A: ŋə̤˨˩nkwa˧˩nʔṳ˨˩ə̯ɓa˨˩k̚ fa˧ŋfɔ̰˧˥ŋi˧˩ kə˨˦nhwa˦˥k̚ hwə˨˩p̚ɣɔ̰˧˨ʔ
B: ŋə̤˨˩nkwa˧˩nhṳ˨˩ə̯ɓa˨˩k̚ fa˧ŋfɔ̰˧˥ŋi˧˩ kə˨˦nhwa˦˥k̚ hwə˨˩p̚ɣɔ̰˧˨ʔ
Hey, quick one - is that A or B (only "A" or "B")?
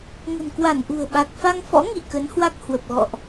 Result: A